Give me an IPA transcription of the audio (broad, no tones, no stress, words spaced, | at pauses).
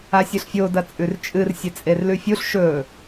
asʲɨɬfʲo dɐt͡sʼʉrt͡ʃʼɨr sʲet͡sʼerlʉfʲuɬ ʃɵ